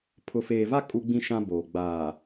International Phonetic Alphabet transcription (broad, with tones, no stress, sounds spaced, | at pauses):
pʰ ʊ˨ f eː˨ v a˦ kʼ u˦ ɡ͡b ĩ˦ ʃ ã˦ b oː˨ ɡ͡b aː˨